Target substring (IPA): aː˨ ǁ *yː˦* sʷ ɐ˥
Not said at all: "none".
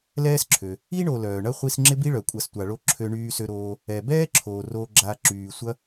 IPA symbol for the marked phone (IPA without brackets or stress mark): yː˩